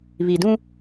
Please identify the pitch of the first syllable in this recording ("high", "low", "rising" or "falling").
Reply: low